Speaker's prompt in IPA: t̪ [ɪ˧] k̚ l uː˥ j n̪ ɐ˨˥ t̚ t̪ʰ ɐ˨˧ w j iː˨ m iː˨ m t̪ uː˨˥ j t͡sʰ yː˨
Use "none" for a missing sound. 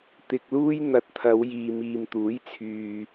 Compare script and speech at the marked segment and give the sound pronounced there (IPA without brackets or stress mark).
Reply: ɪ˧